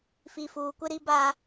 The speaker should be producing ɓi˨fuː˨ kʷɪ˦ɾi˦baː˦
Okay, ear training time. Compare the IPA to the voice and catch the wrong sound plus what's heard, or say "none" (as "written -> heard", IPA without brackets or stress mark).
ɓ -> f